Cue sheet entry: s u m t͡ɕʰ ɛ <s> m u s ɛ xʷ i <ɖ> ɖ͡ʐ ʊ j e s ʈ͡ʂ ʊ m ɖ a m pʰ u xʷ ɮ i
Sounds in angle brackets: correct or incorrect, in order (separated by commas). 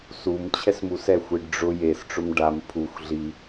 correct, correct